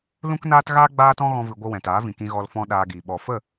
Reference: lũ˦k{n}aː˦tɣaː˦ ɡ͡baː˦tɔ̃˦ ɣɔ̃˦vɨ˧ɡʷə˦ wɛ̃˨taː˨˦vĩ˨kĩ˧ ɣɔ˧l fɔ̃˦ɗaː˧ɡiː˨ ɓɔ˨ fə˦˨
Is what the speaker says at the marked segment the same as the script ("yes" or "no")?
yes